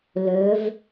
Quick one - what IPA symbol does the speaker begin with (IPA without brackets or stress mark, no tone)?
l